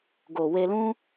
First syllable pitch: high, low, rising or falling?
low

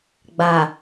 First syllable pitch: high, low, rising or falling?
low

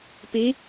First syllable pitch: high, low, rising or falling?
rising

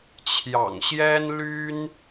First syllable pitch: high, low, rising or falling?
low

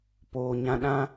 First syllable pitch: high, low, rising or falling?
low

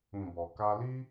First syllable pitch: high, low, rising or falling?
low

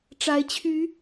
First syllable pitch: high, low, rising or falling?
rising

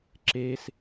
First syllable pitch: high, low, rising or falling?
high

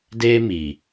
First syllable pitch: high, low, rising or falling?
high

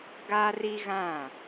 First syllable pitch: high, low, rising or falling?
high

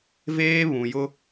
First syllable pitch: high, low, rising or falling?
high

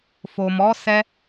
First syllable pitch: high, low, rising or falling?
low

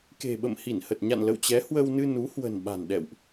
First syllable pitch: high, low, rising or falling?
low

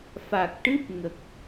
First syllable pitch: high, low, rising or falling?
low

